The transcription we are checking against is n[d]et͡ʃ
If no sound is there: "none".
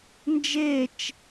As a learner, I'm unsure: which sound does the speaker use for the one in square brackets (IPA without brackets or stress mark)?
d͡ʒ